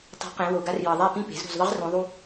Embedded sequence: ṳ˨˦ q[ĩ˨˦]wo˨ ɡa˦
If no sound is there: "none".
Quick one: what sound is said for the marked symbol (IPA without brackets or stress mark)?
ẽ˨˦